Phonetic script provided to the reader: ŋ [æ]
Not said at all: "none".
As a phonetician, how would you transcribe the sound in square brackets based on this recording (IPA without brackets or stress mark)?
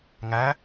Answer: æ